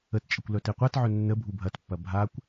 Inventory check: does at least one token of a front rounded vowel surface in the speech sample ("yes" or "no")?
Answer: yes